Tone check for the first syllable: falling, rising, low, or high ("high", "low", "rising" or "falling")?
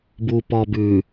low